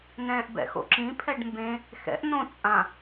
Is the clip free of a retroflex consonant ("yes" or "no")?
no